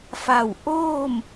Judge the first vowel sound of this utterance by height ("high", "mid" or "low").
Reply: low